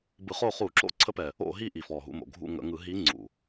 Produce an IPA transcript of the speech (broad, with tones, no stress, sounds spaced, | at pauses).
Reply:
b ɯ˧˩˧ χ o˦˨ χ u˧˩˧ ǁ o̰˦˨ ǀʰ ə˧˥ p ɛ˨˩ | o̰˦˨ ɦ i˦˨ ʔ i˨˩ f ɔ˨˩ ɦ ṵ˦˨ m o̰˨˩ ɡʱ ṵ˦˨ ŋ ə̰˧˩˧ ŋ ɯ˧˩˧ ɦ i˧˥ ŋ͡ǀ ṵ˨˩